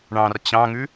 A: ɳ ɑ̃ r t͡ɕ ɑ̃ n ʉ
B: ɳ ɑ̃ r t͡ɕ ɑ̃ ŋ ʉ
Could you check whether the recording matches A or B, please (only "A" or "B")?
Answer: B